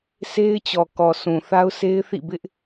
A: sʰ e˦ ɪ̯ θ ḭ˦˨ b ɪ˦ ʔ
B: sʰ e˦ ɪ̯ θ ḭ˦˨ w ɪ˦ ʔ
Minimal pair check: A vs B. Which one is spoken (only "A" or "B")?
A